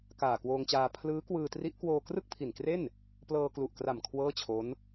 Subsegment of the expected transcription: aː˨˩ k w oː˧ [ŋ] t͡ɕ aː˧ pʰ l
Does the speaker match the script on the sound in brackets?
yes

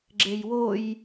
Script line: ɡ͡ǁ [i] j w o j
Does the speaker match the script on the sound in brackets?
no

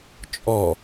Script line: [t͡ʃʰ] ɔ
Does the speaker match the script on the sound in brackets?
no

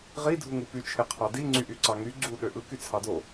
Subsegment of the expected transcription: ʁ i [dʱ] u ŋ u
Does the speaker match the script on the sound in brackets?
yes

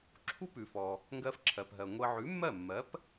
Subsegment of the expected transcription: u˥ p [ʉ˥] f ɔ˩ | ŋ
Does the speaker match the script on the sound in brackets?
no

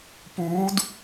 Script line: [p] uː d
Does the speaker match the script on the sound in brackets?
yes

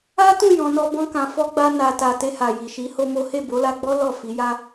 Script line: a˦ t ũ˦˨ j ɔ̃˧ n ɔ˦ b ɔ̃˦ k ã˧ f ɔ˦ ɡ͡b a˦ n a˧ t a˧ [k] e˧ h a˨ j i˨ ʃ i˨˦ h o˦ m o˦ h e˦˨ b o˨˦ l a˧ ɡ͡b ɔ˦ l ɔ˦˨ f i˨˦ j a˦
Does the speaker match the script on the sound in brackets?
no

